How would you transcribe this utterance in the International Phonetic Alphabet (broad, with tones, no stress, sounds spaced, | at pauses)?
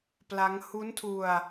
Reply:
p l a˦˥ ŋ h u˦˥ n tʰ u˧ a̯